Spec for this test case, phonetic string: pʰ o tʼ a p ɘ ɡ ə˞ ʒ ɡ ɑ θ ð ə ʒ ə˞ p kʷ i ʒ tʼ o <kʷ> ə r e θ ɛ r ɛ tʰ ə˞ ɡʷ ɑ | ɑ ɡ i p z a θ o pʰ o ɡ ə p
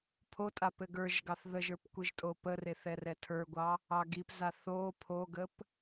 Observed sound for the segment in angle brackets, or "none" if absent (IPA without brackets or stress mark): p